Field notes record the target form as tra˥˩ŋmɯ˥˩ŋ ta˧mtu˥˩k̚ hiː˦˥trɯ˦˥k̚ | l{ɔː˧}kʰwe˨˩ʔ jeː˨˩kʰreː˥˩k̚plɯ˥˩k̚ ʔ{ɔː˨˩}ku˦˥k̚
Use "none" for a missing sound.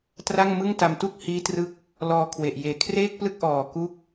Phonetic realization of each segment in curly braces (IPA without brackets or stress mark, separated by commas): ɔː˧, ɔː˨˩